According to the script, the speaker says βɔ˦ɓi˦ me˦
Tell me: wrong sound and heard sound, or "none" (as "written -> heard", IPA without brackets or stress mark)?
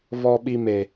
none